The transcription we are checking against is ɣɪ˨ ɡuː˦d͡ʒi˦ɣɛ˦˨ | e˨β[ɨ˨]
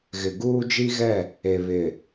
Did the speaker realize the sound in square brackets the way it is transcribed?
no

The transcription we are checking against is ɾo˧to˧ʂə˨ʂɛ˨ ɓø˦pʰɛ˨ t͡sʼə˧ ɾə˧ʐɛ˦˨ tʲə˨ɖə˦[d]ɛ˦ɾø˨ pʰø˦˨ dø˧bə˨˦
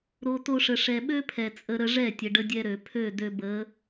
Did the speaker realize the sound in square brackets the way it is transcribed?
no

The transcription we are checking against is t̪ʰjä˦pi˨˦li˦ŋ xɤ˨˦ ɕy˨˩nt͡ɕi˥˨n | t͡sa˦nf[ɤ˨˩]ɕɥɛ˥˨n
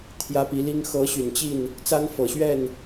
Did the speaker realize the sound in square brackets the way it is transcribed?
yes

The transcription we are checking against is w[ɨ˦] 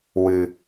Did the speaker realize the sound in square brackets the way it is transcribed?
no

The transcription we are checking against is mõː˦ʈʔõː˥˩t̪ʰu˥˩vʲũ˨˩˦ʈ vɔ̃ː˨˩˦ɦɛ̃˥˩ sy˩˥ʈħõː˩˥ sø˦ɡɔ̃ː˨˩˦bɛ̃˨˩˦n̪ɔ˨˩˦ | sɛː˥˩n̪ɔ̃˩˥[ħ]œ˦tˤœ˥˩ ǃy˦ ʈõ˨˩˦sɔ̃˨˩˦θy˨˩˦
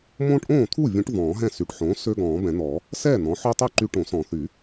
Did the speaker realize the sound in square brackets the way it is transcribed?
yes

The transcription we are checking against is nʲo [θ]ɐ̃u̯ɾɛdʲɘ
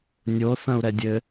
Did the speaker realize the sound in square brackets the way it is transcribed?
yes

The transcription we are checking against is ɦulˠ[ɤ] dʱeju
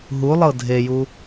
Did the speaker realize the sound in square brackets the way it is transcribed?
yes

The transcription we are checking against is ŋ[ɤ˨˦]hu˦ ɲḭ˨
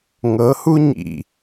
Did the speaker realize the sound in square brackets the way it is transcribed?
yes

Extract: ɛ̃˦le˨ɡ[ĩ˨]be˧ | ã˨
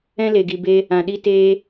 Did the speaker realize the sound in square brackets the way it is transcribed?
no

